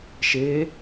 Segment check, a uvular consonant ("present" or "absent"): absent